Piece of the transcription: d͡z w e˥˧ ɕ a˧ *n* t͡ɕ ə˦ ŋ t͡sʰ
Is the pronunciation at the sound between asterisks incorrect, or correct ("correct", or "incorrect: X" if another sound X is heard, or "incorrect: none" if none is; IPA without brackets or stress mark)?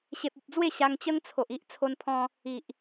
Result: incorrect: ŋ